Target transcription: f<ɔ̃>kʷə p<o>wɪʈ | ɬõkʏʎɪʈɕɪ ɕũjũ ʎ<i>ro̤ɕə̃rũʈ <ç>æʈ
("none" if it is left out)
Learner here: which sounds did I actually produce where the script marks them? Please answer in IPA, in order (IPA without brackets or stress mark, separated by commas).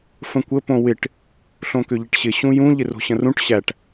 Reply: ə̃, õ, ɪ, ɕ